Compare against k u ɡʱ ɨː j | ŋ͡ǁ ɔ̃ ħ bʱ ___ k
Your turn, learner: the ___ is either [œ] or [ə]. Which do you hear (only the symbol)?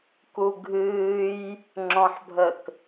ə